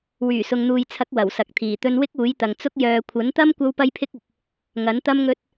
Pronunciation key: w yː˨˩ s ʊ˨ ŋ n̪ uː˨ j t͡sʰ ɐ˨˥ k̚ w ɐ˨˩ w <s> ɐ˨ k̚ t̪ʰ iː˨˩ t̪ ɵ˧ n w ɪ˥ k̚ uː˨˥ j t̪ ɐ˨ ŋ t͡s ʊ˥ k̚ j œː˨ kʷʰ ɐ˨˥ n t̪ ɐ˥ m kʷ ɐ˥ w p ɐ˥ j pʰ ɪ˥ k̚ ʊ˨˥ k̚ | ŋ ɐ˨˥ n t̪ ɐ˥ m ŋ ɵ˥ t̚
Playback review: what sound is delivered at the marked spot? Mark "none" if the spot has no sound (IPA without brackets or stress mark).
s